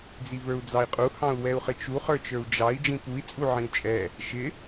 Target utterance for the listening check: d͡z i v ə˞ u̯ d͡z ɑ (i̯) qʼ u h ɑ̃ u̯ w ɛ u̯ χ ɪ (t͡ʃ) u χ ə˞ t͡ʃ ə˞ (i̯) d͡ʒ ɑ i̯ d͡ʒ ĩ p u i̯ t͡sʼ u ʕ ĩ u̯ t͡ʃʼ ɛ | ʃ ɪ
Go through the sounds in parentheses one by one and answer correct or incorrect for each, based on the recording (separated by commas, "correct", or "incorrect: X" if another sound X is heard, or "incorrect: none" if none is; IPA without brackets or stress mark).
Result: correct, correct, incorrect: u̯